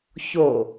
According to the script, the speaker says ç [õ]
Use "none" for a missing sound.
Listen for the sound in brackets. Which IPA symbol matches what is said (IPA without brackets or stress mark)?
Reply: o